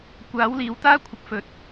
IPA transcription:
kʷ aː˨˥ w l iː˨ w t̪ aː˥ kʷʰ ɪ˨˥ k̚ f ɵ˨ t̚

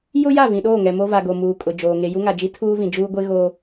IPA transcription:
j ʊ˦ j a˦˨ v ĩ˨ ɗ oː˦˨ ŋ ɛ˨ m o˦ v a˨ ɡ o˨ m uː˨ kʼ ʊ˨ d͡ʒ oː˨ ŋ e˨ j u˦ ŋ a˨ d͡ʒ i˦ tʰ uː˦ v ĩ˨ d͡ʒ uː˦ ɡʷ e˦ ɣ oː˦

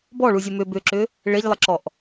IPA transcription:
b ɔ ɭ u zʲ ə m ʏ b ʏ ǁ ʏ | ɭ e ʎ lˠ ə ǁ ɔ ʔ

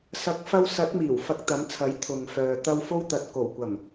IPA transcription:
s ɐ˨˥ k̚ f ɐ˧ w s ɐ˨˥ t̚ m iː˨˩ w f ɐ˧ k̚ t̪ ɐ˨˥ m t͡sʰ ɐ˨˥ j t̪ʰ ʊ˨ ŋ f œː˨ t̪ ɐ˥ w f o˥ w t̪ ɐ˨ t̚ k o˨˩ w kʷ ɐ˨˩ m

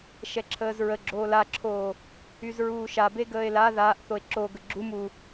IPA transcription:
ʃ ɛ ǁʰ əː z ɹ ə ɡ͡ǁ oː l a ǁʰ oː | y z ɹ uː ʃ a b e ɡ əː e̯ l a ð aː ʔ θ o e̯ ǁ o ɡ ə ɡ͡ǁ u m u

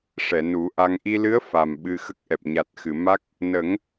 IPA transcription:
ʂ ɛ˨˩˨ n u˨˩˦ ʔ a˧ ŋ ʔ i˧ l ɨ˧˥ ə̯ f a˨˩ m ɓ ɨ˧ x ə˦˥ k̚ ʔ ɛ˨˩ p̚ ɲ a˨˩ t̚ x ɨ˨˩˨ m a˦˥ k̚ | n ə˨˩˦ ŋ

